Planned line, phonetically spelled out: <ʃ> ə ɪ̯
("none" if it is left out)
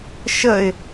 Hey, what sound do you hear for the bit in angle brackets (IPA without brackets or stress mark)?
ʃ